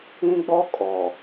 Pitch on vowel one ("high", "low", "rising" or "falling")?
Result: high